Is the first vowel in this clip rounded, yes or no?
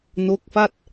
yes